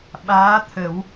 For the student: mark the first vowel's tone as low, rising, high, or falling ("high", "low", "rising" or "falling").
rising